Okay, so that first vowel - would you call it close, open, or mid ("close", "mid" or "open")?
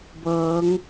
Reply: mid